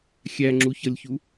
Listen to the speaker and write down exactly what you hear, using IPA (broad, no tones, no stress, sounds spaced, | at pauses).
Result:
xʲ æ ŋ͡ǁ u ç ʌ lʲ ç u